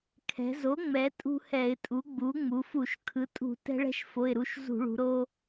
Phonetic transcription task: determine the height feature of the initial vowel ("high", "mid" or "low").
mid